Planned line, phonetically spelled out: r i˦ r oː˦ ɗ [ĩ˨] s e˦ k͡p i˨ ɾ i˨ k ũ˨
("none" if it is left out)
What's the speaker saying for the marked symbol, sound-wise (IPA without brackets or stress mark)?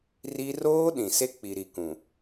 ĩ˨